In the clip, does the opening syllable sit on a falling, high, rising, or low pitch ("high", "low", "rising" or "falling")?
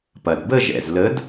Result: low